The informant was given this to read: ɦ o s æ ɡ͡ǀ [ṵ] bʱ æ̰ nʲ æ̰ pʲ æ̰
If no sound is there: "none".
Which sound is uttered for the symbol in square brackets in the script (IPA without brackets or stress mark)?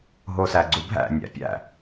u